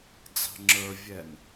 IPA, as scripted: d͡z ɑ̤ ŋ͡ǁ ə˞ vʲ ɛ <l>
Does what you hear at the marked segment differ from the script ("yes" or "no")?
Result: yes